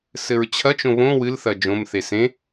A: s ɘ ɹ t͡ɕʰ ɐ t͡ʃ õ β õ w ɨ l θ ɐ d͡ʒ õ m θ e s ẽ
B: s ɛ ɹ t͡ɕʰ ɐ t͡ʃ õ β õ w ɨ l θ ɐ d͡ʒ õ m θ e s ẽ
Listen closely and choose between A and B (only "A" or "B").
A